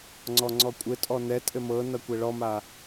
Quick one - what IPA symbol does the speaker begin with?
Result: ŋ͡ǀ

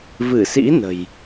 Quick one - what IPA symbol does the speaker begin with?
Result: v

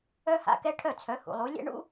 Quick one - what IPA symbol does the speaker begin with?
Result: œ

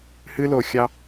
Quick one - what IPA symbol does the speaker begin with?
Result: h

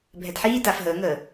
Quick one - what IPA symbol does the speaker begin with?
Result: bʱ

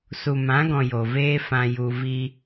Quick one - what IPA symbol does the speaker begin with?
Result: s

